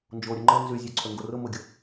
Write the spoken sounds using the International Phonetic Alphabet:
nd͡ʒoɾʲʊŋ͡ǃə nzyzʲøǀʰø ŋɡorʊmʊɡʲʊ

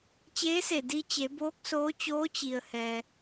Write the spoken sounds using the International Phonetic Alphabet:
t͡ɕeː˧˥se˧˩ di˧t͡ɕe˩˧ boː˧˥k̚soː˧˥t͡ɕoː˧˥ t͡ɕi˩ə̯hɛː˩

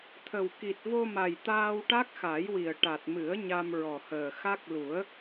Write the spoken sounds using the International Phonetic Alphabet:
t̪ʰə˨˩w ki˨˩t̚vo˧ma˨˩j t̪aː˧wʈa˦˥k̚xa˨˩˦jwi˨˩ə̯ ʈa˨˩t̚mɨ˨˩˦ə̯ ɲa˧mɹɔ˨˩həː˨˩ xa˦˥k̚ lu˨˩˦ə̯

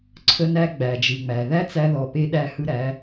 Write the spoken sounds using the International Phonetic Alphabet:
ǀʰə˧næ˧ ɡ͡bæ˨d͡ʒɯ˨ŋ͡mæ˨ ðæ˦t͡sæ˧ðɔ˨pe˧ ɗæ˧hɯ˧ɾæ˨˦

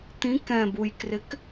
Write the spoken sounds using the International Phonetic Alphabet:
t̪ĩk ɛ̃bujkrɪk

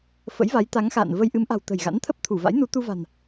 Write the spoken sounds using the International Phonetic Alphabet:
fə̰˧˥jva˨˦jt̪a˨˦ŋxa̰ː˧˨n və˧jʔɨ˨˦mʔa̤˨˩w t̪ə̤˨˩jɣa̰˧˥nt̪ʰə˦˥p̚ t̪ʰu˧˩va̰˧˥j nu˨˦ t̪u˧va̤˨˩n

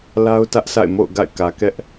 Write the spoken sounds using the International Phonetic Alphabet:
la˦ʊ̯ tä˦ʔsʰa̰˦˨ɪ̯ mo̰˦˨ʊ̯ɡa̰˦˨ɪ̯ kä˨kɛ˦ʔ

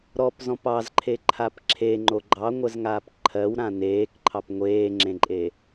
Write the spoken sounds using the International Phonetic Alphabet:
ɾɔpzɔ̃p ɑzǃʰeǃʰap ǁʰeŋ͡ǃo ɡ͡ǃɑŋʷɜzŋaːp ǃʰɜwɾã neːkǃʰɑp ŋʷeːŋ͡ǁẽǃʼe

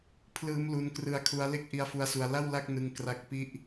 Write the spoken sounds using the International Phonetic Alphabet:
pʰlɯː˦˥mlu˧nkrɯ˦˥a̯kʰu˦˥a̯ le˥˩k̚ ʔi˦˥a̯fu˦˥a̯su˧a̯ la˥˩wla˥˩k̚nɯ˧ŋ kra˥˩k̚ pi˥˩ʔ

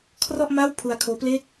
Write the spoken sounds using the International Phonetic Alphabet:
kʰrɔ˥˩ʔma˥˩w pʰu˧a̯kʰoː˦˥ple˥˩k̚

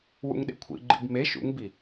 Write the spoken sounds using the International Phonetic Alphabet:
wṵŋɗḛkʷʰḭ ɡ͡ǃḭbme ʃṵŋbi

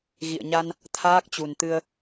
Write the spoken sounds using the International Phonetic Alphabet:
ɣḭ˧˨ə̯ɲa˧n | t̪ʰaː˦˥k̚t͡ɕu˨˩nt̪ɨ˧ə̯

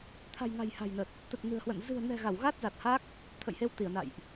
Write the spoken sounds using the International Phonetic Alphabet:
t̪ʰa̤˨˩jŋa̤˨˩j ha̤˨˩jnə˨˩t̚ | t̪ə˨˩t̚ nɨ̤˨˩ə̯hwə̰˧˨n zɨ̤˨˩ə̯nɛ̤˨˩ ɣa˧˩wɣa˦˥t̚za˨˩t̚ha˦˥k̚ | t̪ʰə̰˧˨jhe˧wt̪i˧˩ə̯ na̰˧˨jʔ

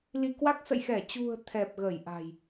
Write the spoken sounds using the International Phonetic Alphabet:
li˧kwa˦˥k̚ sə̰˧˨jxɛ˧˩t͡ɕṳ˨˩ə̯ t̪ʰɛ˨˩p̚ɣə˧˩j ʔa̤˨˩j

